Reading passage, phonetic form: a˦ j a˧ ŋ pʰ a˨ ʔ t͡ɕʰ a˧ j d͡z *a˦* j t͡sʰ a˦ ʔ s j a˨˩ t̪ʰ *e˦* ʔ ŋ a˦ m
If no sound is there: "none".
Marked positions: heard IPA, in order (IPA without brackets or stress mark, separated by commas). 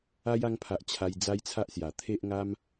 a˦, e˦